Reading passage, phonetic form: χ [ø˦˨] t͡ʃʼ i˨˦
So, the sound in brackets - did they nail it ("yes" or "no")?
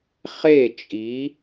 no